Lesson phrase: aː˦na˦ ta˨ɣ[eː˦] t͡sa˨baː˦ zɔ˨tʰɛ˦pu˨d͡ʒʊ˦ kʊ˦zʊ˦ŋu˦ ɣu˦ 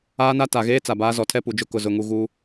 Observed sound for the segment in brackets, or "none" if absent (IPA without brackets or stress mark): eː˦